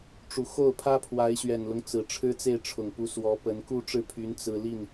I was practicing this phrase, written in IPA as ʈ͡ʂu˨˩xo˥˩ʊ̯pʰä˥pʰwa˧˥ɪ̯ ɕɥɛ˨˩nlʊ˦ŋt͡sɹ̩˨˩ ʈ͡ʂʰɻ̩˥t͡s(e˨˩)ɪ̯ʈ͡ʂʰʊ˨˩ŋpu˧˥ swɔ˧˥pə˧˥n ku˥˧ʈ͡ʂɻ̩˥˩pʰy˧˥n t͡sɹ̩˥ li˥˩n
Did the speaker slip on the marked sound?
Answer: yes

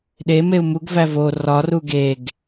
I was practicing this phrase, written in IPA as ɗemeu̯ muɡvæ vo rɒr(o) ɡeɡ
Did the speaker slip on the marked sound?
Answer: yes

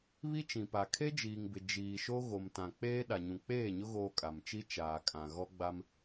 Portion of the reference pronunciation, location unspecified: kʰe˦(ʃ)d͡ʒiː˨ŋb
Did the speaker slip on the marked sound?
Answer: yes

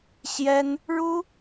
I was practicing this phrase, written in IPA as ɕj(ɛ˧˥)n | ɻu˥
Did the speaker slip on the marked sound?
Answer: yes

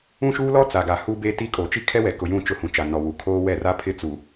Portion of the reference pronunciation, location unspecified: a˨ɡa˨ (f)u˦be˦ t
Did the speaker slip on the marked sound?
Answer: yes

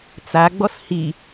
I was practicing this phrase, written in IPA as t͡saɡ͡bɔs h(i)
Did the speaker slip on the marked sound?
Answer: no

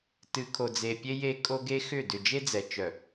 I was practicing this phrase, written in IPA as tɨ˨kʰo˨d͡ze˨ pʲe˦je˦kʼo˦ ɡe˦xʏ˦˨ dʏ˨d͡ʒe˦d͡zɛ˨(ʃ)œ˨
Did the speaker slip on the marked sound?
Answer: yes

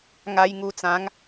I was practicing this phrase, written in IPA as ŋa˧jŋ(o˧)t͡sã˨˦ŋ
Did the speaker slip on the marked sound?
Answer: yes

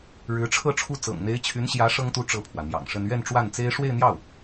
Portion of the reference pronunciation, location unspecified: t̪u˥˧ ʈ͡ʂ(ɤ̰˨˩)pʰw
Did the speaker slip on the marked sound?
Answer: yes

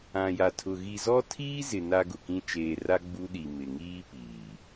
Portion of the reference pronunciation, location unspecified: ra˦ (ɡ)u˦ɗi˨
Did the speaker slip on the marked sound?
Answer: yes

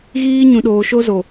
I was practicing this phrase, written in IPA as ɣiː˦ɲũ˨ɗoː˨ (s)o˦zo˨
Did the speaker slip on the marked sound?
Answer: yes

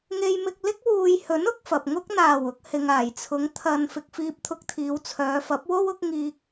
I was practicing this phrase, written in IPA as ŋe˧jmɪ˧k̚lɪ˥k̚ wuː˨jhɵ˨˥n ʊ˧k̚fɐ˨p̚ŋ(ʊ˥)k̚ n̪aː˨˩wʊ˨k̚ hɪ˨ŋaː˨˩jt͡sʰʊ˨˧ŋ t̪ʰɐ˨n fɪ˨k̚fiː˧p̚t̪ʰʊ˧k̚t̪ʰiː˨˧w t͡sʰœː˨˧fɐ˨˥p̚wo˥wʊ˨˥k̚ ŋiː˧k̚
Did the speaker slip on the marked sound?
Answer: no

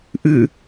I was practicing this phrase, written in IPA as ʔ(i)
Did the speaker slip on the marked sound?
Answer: yes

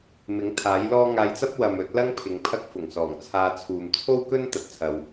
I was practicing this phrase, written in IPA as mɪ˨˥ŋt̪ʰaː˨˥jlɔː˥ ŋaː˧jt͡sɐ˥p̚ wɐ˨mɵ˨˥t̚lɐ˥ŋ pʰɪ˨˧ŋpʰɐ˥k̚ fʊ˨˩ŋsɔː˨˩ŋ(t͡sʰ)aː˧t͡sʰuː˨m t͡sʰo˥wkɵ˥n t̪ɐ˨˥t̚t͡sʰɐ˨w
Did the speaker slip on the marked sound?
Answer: no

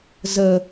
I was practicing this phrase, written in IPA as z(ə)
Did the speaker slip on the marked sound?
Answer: no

